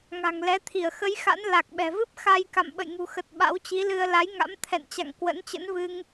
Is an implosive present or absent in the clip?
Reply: present